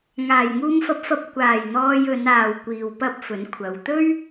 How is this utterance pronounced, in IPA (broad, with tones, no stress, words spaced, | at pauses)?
ŋaː˨˩jŋuː˧mfɐ˧p̚fɐ˧p̚ kʷaː˨˩j n̪ɔː˧jɵ˨˧n aː˨wkʷiː˨w pɐ˥p̚fɵ˨˥nkʷʰɐ˨˧w t̪ɵ˥ɥ